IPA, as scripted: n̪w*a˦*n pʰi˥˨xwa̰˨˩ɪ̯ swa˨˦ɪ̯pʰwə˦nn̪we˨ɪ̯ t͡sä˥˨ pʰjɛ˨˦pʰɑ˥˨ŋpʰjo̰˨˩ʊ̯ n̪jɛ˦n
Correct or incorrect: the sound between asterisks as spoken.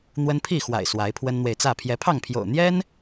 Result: incorrect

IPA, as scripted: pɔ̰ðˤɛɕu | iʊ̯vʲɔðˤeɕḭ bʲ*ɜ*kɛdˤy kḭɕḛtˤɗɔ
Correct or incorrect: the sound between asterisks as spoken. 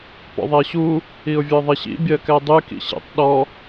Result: correct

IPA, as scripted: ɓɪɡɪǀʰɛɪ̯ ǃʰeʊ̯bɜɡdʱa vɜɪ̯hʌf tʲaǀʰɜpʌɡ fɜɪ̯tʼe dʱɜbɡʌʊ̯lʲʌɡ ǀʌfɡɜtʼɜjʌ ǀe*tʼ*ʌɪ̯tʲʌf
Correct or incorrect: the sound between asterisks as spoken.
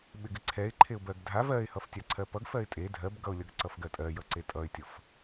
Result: correct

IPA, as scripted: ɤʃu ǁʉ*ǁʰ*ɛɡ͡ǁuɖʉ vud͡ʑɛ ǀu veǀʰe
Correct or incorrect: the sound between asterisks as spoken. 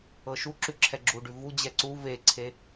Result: correct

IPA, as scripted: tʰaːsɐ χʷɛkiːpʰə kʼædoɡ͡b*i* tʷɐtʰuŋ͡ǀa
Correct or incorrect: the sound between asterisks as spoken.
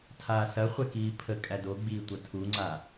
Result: incorrect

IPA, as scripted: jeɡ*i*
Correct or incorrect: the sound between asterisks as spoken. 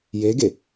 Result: incorrect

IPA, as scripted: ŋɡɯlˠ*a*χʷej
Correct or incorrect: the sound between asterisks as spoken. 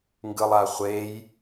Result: correct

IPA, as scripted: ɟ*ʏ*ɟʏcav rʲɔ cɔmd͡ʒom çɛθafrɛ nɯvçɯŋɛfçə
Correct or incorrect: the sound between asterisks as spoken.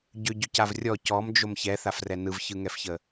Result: correct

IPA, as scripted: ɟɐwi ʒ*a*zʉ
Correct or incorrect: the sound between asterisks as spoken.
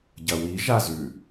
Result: correct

